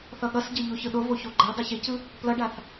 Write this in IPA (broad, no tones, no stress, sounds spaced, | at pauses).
θ ʌ ɠ ʌ s ɟ ʌ ʎ o ç ɯ ɗ o v o ç o ɡ͡ǃ ɛ dˤ e ç e c ɯ | p l ʌ ɖ a θ